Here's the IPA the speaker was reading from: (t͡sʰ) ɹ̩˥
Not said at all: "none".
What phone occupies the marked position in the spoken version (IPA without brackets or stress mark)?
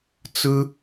t͡s